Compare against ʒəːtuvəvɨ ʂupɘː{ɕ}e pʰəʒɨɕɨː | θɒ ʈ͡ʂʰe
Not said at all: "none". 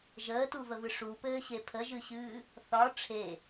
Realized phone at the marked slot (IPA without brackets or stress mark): ɕ